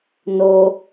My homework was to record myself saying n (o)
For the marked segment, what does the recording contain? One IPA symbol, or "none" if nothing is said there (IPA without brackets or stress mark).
o